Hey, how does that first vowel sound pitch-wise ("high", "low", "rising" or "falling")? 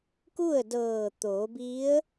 falling